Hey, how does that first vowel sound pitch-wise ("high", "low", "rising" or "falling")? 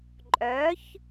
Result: rising